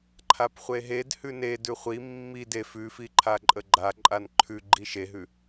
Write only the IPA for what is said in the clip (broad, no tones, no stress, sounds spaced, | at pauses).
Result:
ǃʰ a p χʷ e ɦ e d h ʉ n e d ʉ χʷ i mː i d e f ʉ f i ǃʰ a ǃʼ ə ɡ͡ǃ a ǃʼ a n ǃʰ ʉ ɡ͡ǃ i ʃ e ɦ ʉ